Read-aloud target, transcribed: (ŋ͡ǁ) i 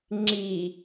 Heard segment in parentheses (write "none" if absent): ŋ͡ǁ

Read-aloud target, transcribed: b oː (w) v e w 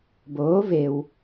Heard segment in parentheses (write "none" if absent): none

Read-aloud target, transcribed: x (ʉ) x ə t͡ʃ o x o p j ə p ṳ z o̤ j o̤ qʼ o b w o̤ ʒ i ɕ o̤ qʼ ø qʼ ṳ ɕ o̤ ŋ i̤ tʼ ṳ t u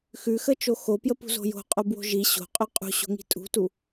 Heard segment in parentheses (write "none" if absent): ʉ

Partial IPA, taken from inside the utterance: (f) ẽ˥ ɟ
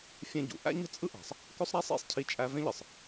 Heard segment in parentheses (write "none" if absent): fʲ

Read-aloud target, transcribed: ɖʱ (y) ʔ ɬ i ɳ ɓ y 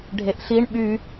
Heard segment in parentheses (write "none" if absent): e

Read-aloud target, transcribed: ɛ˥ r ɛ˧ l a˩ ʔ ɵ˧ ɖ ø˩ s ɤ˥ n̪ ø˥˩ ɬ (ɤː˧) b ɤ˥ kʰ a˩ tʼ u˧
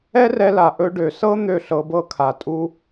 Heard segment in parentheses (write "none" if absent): ɤ˧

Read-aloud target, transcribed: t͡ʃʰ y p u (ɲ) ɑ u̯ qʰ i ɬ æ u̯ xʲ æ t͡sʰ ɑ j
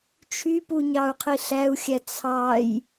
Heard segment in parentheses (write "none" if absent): ɲ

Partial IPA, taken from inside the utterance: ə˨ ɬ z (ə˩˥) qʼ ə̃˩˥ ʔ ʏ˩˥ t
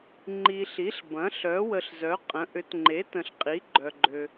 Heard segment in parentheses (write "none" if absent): œ˩˥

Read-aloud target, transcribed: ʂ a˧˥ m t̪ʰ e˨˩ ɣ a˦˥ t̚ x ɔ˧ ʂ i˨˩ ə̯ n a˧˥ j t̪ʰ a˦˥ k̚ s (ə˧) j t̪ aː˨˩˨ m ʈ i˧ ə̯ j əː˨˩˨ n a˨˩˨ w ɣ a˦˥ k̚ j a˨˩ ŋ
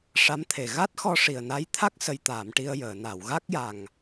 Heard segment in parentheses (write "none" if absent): ə˨˩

